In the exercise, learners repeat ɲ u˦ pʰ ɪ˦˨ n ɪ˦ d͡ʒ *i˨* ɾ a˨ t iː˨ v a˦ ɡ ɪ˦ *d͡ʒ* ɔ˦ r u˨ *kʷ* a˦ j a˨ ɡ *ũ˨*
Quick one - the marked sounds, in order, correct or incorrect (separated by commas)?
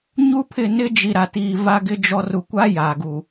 correct, correct, correct, incorrect